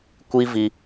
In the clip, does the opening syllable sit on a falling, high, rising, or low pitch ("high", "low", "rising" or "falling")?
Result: high